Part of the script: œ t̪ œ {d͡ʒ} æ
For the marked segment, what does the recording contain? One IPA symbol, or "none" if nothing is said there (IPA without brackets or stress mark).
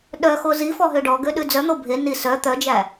d͡ʒ